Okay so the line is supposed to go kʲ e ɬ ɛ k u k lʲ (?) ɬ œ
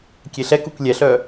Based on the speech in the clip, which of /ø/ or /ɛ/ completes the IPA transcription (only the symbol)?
ɛ